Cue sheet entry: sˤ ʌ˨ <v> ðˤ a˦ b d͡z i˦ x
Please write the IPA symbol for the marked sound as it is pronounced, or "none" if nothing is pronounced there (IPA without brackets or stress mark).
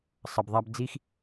b